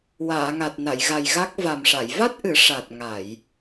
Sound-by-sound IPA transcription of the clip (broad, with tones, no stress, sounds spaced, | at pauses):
w aː˨˩˨ ŋ a˨˩ t̚ n a˨˩˨ j ɣ a˨˩ j ɣ a˦˥ k̚ v a˨˩ m ʂ a˨˩˨ j v a˦˥ t̚ ʔ ɨ˨˩˦ ʂ a˨˩ t̚ ŋ a˨˩˨ j